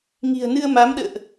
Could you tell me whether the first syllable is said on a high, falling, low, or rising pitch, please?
low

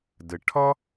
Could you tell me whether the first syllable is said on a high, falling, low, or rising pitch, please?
low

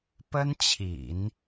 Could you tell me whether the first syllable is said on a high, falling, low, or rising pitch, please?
high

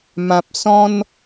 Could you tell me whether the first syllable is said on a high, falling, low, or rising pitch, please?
low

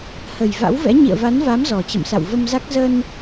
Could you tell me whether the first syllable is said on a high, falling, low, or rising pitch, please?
low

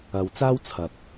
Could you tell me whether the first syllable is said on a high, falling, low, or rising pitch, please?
low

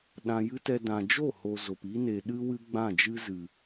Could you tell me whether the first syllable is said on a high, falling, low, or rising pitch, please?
high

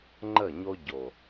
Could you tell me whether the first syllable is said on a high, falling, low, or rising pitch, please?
falling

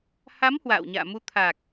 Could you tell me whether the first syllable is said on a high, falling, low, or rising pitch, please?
rising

